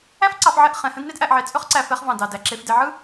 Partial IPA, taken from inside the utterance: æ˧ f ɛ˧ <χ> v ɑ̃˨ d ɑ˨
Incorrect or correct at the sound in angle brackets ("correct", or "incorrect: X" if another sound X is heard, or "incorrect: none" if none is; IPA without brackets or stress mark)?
correct